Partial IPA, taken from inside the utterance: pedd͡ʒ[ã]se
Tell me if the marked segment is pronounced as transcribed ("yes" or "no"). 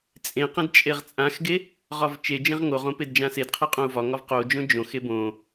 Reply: yes